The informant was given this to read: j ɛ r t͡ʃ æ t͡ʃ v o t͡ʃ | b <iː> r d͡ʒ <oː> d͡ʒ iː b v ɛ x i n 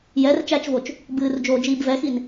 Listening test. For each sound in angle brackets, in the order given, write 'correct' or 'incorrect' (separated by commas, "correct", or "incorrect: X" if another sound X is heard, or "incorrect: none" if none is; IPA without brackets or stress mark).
incorrect: ɨː, correct